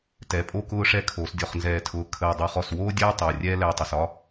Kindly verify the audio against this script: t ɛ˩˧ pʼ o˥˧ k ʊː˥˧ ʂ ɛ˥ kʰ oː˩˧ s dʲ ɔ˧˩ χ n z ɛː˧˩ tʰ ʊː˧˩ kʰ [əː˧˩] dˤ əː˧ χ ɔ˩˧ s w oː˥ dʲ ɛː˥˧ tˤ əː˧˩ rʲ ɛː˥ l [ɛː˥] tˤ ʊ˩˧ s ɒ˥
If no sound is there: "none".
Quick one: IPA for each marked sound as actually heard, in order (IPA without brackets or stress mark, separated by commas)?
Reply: əː˧˩, ɛː˧